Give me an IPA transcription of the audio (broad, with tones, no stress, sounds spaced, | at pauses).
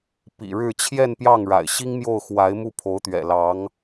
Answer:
p ḭ˨˩ ɻ ɻ̩˥˧ t͡ɕʰ j ɛ˥˧ n p j ɑ˥˩ ŋ ɻ a̰˨˩ ɪ̯ ɕ i˥ ŋ m j o˥˩ ʊ̯ x w a˧˥ ɪ̯ m u˥˩ pʰ o˧˥ ʊ̯ t̪ ɥ ɛ̰˨˩ l ɑ˧˥ ŋ